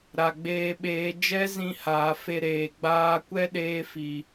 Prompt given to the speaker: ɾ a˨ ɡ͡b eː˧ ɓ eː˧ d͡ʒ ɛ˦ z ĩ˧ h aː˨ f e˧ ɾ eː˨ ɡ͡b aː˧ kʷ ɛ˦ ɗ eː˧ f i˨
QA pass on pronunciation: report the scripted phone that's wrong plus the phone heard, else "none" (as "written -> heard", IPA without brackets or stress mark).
none